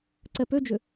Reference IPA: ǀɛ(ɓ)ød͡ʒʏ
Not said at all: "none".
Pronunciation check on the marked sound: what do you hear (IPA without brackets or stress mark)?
p